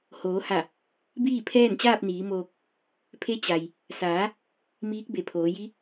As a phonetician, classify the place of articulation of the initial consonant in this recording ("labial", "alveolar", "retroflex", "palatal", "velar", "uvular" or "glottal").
glottal